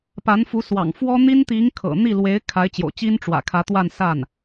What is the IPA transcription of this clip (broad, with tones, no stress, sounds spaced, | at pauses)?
p a˧˥ n f u˧˥ s w ɑ̰˨˩ ŋ f w ɔ˥ n̪ i˥ n t̪ i˧˥ ŋ kʰ ɤ̰˨˩ n̪ i˥˩ l w e˧˥ ɪ̯ kʰ a˧˥ ɪ̯ t͡ɕ j o̰˨˩ ʊ̯ t͡ɕ i˥ n ʈ͡ʂ w ä̰˨˩ kʰ ä˧˥ t̪ w a˥˧ n s a˥˩ n